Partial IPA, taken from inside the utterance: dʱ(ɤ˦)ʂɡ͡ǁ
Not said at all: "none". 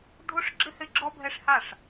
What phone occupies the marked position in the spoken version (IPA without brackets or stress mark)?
o˦